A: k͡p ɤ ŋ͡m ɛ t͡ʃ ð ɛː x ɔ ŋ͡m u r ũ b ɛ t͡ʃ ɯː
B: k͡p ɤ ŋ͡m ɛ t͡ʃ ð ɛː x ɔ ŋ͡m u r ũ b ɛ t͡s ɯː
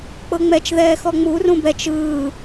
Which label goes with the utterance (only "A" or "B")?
A